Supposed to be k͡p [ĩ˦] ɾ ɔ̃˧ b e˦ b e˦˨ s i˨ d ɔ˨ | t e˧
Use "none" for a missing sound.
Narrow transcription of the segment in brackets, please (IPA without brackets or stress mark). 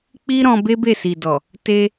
i˦